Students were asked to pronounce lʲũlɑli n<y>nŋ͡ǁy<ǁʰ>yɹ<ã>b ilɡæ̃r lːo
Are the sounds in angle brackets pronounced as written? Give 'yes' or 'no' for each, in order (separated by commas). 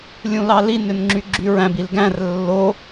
no, no, no